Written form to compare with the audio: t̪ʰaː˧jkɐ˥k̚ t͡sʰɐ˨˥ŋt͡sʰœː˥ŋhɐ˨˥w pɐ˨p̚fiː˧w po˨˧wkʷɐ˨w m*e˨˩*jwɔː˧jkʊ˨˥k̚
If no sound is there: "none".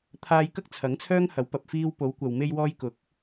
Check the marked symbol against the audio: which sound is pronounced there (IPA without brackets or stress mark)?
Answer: e˧